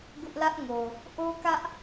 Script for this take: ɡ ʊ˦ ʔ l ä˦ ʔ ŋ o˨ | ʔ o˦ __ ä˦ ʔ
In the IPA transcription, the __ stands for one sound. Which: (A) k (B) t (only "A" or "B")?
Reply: A